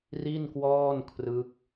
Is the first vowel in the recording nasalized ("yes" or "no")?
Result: no